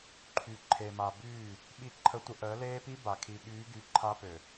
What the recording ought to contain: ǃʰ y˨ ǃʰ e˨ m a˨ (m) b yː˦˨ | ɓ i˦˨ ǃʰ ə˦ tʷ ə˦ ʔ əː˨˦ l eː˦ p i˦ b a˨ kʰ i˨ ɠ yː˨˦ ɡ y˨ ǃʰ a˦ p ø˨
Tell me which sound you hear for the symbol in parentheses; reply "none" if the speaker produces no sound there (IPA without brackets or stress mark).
none